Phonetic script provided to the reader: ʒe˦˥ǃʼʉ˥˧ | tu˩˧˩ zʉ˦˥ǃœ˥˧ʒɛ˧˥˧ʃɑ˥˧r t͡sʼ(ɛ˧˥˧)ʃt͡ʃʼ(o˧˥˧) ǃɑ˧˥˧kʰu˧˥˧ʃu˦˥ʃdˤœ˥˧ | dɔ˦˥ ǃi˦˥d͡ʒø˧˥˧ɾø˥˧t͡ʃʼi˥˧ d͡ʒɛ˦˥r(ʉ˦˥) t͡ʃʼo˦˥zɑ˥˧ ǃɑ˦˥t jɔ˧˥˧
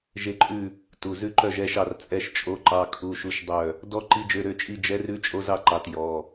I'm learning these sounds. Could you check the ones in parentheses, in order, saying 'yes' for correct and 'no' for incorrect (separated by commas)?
yes, yes, yes